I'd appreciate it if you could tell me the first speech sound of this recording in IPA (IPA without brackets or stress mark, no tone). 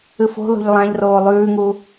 ɨ